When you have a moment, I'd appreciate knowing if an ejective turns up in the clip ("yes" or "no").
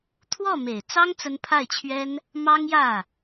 no